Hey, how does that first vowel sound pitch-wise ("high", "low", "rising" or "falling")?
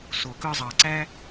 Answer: low